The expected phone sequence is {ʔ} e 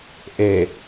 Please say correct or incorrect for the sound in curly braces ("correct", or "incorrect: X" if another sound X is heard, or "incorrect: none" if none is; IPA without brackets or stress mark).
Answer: correct